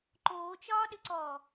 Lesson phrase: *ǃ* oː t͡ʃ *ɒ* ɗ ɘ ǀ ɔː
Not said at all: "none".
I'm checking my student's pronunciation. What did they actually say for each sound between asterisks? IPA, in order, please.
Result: ǃ, ɒː

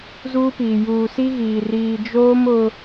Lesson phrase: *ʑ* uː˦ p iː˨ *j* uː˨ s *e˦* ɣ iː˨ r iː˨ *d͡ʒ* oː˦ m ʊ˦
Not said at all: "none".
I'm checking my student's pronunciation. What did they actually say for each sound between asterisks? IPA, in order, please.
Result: z, j, i˦, d͡ʒ

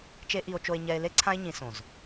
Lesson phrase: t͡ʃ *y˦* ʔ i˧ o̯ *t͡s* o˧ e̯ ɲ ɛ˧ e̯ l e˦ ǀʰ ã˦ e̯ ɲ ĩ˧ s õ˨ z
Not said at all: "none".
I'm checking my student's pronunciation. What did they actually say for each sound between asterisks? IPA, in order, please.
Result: e˦, t͡ʃ

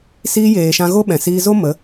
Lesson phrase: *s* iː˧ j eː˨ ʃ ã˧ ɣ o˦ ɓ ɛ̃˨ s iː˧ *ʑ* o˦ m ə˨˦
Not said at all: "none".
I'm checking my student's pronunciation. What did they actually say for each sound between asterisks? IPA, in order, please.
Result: s, z

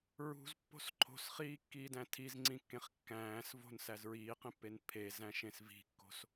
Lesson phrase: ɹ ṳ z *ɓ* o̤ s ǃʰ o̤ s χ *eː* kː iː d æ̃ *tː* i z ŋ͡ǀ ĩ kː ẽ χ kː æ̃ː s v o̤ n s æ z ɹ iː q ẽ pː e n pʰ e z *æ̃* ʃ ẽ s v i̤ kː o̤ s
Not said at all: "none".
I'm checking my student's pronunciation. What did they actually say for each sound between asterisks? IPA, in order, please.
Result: pː, iː, tʰ, æ̃

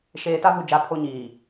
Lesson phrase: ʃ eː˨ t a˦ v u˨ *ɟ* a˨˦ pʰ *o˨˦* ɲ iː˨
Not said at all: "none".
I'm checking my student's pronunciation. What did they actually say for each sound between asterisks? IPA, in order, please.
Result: d͡ʒ, o˦

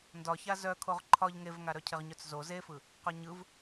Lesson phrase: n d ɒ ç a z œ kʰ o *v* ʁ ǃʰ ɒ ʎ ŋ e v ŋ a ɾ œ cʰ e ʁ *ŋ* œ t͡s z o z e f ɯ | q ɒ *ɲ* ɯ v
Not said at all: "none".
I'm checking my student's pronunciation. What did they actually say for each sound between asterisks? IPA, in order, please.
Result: none, ɲ, ɲ

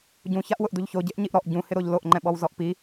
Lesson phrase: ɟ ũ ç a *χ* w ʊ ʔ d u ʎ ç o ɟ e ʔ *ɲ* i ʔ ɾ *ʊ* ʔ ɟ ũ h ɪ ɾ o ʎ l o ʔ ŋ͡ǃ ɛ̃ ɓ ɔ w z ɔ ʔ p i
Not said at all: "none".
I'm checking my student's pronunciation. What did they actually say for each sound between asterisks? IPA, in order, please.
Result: ʔ, ɲ, ɔ

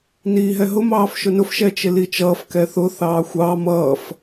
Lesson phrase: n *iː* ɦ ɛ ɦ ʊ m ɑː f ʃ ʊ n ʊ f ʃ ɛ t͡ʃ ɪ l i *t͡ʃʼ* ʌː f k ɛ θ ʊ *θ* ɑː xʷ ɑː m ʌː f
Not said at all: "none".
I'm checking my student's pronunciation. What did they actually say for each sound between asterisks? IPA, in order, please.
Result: iː, t͡ʃ, θ

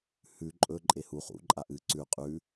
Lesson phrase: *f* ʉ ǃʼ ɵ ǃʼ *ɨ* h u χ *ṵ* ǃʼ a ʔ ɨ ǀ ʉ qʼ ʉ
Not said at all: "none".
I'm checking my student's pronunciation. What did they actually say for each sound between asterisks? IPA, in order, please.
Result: h, e, ṵ

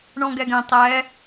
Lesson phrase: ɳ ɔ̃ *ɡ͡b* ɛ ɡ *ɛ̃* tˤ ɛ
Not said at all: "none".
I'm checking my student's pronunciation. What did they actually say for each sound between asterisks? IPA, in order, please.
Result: ɡ, ɛ̃

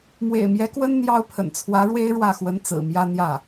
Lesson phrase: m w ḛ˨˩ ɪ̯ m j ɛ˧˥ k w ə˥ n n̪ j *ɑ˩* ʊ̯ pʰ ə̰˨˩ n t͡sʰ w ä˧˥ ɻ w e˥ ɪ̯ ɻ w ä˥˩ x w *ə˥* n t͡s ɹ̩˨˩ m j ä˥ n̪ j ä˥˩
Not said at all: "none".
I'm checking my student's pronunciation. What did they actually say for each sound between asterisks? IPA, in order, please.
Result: ɑ˥, ə˧˥

